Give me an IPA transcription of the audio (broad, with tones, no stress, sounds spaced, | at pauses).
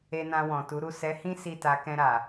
e˧ n ã˧ w ɔ̃˨ t u˨˦ ɾ u˦˨ s ɛ˨˦ h ĩ˦ s i˦˨ t a˧ k ɛ̃˧ ɾ a˨